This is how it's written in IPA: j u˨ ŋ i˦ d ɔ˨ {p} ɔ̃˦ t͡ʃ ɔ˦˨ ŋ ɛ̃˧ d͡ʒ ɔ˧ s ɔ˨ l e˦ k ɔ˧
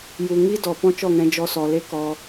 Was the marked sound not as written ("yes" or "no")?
no